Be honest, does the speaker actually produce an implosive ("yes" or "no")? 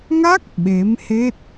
yes